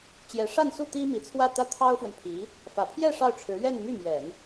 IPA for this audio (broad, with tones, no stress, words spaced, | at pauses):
t͡ɕjɛ˧˥ʂa˥˧nsu˥˩ t̪i˥mi˧˥t͡sʰwä˥˩ t̪ä˥t̪ʰɑ˥ʊ̯fwə˨npʰi˧˥ | fä˨˩pʰjɛ˥˧ ʂɑ˥˩ʊ̯ ʈ͡ʂʰɻ̩˧˥ ɥɛ˥˧nmy˥˩ mjɛ˨˩˦n